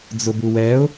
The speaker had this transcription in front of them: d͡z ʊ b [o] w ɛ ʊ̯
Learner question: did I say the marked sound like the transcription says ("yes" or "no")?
no